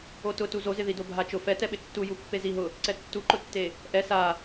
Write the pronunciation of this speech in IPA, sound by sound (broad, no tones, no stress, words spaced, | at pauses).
otʊtu zozɪ ðidobʱat͡ʃʊ fɛ tɛɓɪtːu jupːeziɦʊ | ǀɛtːuǃʊtːe | ʔɛ sa